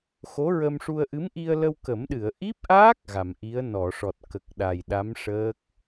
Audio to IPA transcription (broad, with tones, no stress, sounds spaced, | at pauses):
x o˧˥ ɹ ə˧ m ʂ u˧ ə̯ ʔ ɨ˧˥ m ʔ i˧ ə̯ l ə˧ w k ə˨˩˦ m ɗ ɨ˨˩˨ ə̯ ʔ i˦˥ p̚ ʔ aː˦˥ k̚ ɣ a˨˩˨ m ʔ i˧˥ ə̯ n ɔ˨˩˨ ʂ ɔ˨˩ t̚ k ə˨˩ k̚ ɗ a˨˩ j ɗ a˧˥ m ʂ əː˦˥ k̚